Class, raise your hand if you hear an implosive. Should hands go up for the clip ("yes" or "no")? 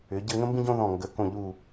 no